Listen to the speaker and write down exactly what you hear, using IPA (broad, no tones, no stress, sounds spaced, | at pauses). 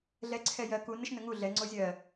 ɮ ɛ ǀʰ ɛ j ɜ k u n ə ʃ n ə ŋ u ɮ ɛ ŋ͡ǀ o zʲ ɜ